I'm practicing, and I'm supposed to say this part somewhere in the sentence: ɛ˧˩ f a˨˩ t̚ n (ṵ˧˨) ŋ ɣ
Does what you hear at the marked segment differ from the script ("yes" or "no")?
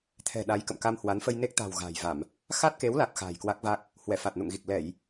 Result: no